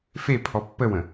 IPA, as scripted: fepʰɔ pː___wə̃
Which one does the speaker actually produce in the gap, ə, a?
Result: ə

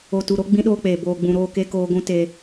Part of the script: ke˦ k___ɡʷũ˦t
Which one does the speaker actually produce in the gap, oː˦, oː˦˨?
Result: oː˦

